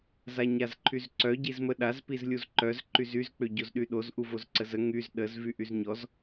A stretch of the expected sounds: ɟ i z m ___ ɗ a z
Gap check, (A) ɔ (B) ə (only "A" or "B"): B